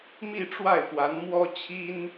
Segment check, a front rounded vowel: absent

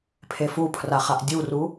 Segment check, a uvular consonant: present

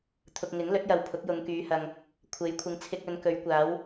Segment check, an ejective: absent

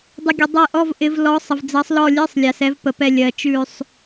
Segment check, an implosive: absent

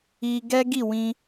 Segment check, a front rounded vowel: absent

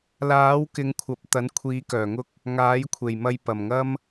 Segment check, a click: absent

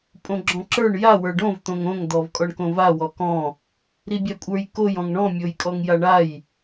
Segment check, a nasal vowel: present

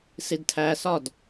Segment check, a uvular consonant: absent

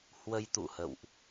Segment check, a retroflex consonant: absent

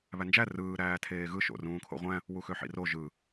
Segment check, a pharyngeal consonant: present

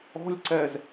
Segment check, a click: present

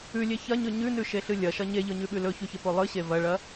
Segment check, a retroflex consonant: present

